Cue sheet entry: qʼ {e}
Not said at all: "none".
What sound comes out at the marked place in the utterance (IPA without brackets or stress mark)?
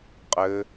ɘ